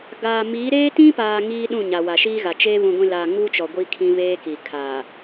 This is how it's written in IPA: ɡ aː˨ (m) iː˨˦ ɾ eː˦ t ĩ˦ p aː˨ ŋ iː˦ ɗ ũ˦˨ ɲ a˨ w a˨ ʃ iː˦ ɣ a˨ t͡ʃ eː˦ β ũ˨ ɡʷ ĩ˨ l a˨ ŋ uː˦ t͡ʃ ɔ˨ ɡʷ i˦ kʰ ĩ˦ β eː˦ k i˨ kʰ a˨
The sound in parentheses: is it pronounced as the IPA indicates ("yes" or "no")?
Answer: yes